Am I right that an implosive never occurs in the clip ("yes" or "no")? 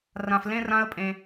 yes